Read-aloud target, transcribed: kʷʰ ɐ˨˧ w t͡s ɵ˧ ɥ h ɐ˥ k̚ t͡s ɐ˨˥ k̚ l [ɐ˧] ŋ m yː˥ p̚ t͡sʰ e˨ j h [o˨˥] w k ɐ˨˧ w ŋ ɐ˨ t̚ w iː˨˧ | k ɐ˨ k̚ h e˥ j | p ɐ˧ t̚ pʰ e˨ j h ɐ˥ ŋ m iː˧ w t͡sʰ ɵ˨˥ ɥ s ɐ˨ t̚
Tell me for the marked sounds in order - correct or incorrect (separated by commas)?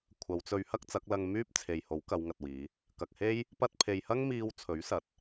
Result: correct, correct